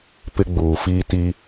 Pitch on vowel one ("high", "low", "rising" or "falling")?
high